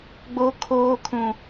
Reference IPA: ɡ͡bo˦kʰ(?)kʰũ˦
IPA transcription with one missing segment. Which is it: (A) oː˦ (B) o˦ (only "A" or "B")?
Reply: A